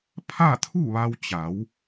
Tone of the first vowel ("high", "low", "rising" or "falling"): falling